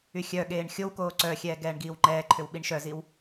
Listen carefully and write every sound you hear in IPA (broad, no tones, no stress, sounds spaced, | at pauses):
y xʲ œ ɠ eː ɳ xʲ o w k oː ǀ œ xʲ ɛː ɡ ɛː ɳ ɡ iː w ŋ͡ǃ ɛː ǃʰ ʏ w ɓ i ɳ ʃ œ z i w